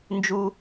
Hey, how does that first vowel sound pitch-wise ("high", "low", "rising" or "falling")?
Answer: high